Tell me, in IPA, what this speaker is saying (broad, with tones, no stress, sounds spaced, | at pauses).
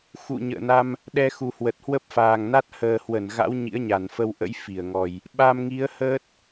x ṵ˧˨ ɲ ə̰ː˧˨ n a˧ m | ɗ ɛ˧ x u˨˩ h w ə˨˩ t̚ h w ə˦˥ p̚ f aː˨˩ ŋ n a˦˥ t̚ h əː˨˩ h w ə˧˩ n ɣ a̰˧˥ w ɲ ḭ˧˥ ə̯ ɲ a˧˩ n f ə˧ w ʔ ə̰˧˥ j f i˧˩ ə̯ ŋ ɔ˨˩ j | ɓ a˧ m ŋ i˨˦ ə̯ h əː˦˥ t̚